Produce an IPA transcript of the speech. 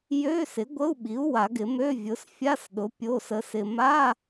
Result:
jø˧˥˧ sɪ˩˥ɡʷə˧˥˧u̯ɓi˩˥u̯ wa˨˩˦ɡɪ˨˩˦mø˧˥˧ vʲʊ˩˥sfʲa˧˥˧sɗʊ˩˥ pʲo˧˥˧sə˧sɪ˧ ma˧˥˧

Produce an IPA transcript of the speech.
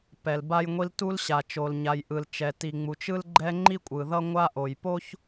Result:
pɛ˨l ba˦jŋʷi˦l tu˦lɕa˨t͡ʃo˨l ɲa˨jʔɯ˨l t͡ʃɛ˨ti˨ŋ͡mu˨t͡ʃ ɯ˦lɡ͡ǃɛ˦ ŋ͡ǃi˦kʷʼɯ˨ðʌ˦ ŋʷa˦ʔo˨jpo˦ç

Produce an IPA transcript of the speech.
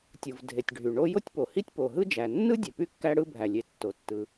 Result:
tʲɯ˩vdʱe˩tʲ ɖʱy˩ɳo˥ jo˥tʲpo˩hi˥tʲ po˩ɦɯ˥d͡ʒæ˩ nːɯ˥dʲe˩ py˥kːæ˥ɽɯ˥ bʱæ˩lʲe˩ tːo˩tːɯ˩

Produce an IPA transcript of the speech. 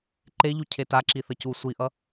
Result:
ǃeʎu cʰetaǁi θʌcu sʷiʔʌ

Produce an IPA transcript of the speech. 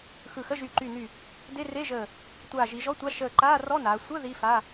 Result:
xɯ˧˩xə˧˥˧ ʒy˧˩ǃy˧˩ny˧˩ | de˧˥˧re˧˥˧ʒəː˧˩ | tʷaː˧˩ʒi˩˧ʒɔ˧˥˧tʷa˧˥˧ ʃəː˧˩ ǃaː˧˥˧rɔ˧˥˧naː˩˧ sʷə˧˥˧ ði˧˥˧fa˧˥˧

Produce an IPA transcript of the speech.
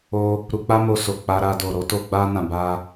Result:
o˧ | ɾu˧k͡pa˦mo˧ so˨ k͡pa˧ɾa˧ do˨ɾo˨˦to˧ ɡ͡ba˧nã˨ba˧

